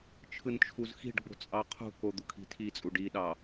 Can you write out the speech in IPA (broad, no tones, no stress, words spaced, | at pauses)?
t͡ʃʰɯnt͡ʃʰuzxi̤ɖɡ͡bo̤ t͡sʼɑqʰṳko d̪ukʰi̤tʰit͡sʼu ɖiɗɑ